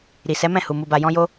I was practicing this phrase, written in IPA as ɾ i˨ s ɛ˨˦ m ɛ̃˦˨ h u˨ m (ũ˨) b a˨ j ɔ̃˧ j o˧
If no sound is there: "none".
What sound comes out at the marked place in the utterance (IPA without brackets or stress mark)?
u˨